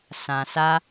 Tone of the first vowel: low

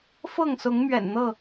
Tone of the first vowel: falling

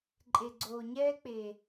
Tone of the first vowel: low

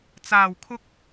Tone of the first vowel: low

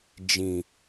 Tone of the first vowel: low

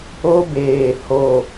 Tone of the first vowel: high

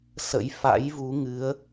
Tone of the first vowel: rising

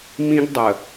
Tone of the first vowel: high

